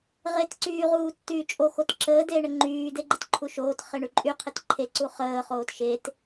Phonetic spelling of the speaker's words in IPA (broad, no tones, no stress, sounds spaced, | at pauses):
ʁ e t ǀ yː ʁ uː tː yː t͡ʃʼ o x o t ǁ əː d eː ɳ ə ŋ͡ǃ yː d e ɡ͡ǃ ə t ǃʰ u ʃ oː t χ e ɳ y ǃʼ y qʰ e t ǃʰ e ǀ u χ əː χ oː t ʃ e t